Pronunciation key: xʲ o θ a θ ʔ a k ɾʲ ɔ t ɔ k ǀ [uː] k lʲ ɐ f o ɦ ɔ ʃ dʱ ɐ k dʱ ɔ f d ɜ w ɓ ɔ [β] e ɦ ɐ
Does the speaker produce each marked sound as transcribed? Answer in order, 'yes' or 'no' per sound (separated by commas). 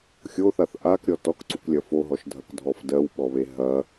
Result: no, yes